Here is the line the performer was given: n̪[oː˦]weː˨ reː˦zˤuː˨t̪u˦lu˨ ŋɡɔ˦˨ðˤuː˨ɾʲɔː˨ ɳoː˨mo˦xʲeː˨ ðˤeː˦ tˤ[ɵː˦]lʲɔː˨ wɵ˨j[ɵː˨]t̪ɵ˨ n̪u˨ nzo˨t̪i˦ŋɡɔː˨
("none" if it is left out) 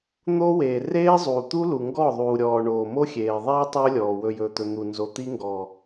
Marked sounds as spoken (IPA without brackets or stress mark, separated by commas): oː˦, ɵː˦, ɵː˨